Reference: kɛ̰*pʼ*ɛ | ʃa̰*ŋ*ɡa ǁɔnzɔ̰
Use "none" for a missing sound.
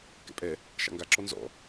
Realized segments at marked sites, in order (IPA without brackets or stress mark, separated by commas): pʼ, ŋ